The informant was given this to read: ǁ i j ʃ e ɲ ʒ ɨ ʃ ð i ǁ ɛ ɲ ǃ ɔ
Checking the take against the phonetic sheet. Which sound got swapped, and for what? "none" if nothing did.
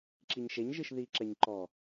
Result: j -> ɲ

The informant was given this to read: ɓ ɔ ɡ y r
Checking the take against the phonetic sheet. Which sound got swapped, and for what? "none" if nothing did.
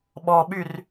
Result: ɡ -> ɓ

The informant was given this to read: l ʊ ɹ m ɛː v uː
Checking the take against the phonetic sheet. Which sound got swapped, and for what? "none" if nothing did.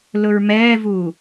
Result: none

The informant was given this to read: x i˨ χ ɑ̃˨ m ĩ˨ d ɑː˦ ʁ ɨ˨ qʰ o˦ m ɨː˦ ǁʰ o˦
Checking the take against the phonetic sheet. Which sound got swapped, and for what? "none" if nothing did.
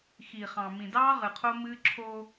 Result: none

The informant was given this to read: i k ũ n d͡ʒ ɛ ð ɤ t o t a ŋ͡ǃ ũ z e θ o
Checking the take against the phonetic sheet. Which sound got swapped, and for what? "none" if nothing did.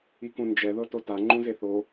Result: none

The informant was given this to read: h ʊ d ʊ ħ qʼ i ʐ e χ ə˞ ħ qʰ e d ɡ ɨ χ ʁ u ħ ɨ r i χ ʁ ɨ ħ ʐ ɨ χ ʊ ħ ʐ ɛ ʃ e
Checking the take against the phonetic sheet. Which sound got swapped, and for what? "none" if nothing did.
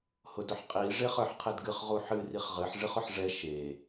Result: none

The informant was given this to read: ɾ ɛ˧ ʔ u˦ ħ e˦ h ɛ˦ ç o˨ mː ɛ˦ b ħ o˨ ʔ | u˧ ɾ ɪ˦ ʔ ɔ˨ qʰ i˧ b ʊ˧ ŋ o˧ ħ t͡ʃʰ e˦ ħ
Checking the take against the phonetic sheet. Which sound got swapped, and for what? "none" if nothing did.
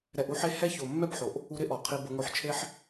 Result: none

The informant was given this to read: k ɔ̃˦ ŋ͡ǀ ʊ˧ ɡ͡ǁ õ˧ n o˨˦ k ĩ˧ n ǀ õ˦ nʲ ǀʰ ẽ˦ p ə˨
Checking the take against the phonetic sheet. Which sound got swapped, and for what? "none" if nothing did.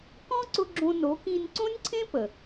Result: ŋ͡ǀ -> ǀ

